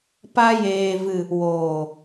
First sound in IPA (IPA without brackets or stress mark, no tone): p